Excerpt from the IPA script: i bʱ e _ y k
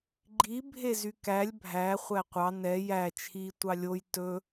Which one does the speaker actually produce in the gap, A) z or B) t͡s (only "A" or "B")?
A